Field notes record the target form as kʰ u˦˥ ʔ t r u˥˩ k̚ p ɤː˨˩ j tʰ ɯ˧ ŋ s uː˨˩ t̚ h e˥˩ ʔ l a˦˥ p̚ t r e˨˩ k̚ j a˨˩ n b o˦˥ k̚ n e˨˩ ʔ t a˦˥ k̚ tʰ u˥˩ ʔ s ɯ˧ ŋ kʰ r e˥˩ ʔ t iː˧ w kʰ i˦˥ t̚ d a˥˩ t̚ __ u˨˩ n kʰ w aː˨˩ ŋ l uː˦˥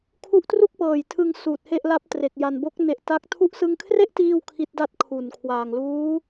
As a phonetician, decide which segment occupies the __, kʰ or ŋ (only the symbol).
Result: kʰ